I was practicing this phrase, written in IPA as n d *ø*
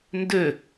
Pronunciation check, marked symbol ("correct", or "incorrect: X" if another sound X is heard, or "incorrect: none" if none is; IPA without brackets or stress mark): correct